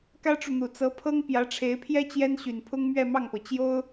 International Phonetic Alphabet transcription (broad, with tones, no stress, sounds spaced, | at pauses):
k ä˥ ʈ͡ʂ u˨ n̪ u˨˩ t͡s ɤ˧˥ pʰ ɤ˥ ŋ p j ä˧˥ ʈ͡ʂʰ e˧˥ ɪ̯ pʰ j ɛ˥ t͡ɕ j ɛ˥ n ɕ y˨˩ n pʰ ʊ˥ ŋ m ɥ ɛ˥˧ m ɑ˥˩ ŋ p ɤ˩ t͡ɕ j o˥ ʊ̯